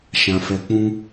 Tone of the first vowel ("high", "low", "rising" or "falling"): low